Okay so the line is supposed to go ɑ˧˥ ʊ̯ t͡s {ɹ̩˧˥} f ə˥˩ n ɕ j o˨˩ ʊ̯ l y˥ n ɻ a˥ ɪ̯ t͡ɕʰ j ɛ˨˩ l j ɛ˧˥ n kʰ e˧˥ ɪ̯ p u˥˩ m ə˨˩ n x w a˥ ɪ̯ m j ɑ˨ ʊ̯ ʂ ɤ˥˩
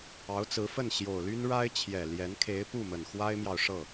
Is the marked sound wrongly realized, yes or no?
no